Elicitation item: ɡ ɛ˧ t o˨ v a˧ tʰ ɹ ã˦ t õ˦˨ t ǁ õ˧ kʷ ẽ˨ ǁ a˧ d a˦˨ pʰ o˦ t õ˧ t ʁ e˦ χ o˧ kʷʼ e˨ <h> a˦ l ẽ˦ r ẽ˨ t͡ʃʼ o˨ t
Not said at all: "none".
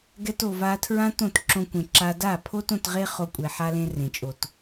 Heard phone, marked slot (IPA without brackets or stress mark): ħ